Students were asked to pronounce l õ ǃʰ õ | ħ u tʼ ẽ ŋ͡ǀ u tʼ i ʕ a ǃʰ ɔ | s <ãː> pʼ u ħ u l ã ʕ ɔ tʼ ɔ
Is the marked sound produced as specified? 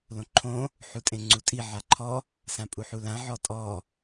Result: no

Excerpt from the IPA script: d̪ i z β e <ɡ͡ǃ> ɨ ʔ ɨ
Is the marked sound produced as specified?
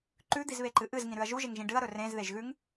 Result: no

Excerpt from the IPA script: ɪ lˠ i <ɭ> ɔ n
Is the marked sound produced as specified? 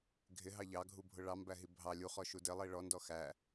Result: yes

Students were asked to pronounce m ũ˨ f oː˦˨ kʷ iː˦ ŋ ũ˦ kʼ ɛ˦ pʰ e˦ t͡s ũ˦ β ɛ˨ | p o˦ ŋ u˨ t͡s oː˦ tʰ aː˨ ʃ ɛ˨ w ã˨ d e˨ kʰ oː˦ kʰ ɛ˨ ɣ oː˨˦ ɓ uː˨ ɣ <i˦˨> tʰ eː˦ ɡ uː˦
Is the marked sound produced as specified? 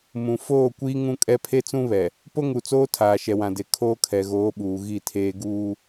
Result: yes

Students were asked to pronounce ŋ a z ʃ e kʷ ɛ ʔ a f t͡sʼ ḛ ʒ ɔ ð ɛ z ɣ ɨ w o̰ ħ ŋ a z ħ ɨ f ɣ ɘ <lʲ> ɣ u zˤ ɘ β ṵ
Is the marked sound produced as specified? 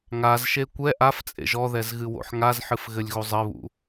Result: yes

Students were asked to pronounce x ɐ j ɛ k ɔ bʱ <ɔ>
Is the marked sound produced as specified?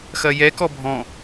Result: no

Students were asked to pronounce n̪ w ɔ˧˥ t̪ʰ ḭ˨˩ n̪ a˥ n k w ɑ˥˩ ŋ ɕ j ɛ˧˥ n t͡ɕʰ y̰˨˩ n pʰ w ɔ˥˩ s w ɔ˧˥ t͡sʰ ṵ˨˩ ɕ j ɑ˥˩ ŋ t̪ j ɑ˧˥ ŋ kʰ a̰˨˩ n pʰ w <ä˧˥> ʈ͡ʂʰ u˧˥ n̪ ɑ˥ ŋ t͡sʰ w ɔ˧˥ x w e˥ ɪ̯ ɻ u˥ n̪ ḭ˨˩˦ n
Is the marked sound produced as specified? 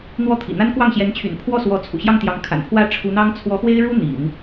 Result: no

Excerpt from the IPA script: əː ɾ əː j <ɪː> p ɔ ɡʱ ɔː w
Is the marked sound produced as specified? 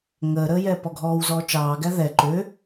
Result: no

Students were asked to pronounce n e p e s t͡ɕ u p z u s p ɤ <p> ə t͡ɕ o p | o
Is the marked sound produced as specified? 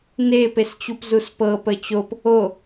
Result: yes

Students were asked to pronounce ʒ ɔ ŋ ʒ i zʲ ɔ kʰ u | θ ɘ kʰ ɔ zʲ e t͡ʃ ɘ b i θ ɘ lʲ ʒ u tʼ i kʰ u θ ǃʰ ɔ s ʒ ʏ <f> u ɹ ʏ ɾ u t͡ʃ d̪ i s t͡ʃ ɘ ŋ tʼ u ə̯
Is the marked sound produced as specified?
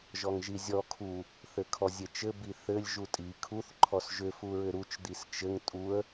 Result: yes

